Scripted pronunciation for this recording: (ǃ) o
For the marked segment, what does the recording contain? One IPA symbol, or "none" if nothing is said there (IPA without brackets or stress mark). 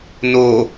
n